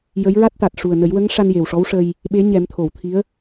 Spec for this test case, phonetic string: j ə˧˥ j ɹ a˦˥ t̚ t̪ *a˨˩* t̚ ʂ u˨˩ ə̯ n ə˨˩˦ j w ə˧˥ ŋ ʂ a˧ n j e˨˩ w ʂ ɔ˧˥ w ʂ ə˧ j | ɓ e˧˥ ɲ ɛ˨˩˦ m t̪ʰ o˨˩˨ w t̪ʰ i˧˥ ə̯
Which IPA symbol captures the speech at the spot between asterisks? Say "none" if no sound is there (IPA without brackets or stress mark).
a˨˩